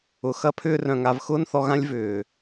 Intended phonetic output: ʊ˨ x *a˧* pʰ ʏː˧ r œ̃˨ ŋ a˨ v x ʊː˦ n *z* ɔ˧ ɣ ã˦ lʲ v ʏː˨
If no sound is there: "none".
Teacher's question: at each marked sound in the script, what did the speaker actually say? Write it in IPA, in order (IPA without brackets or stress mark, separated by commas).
ɐ˧, θ